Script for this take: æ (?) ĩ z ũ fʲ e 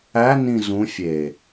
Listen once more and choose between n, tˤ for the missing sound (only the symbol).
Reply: n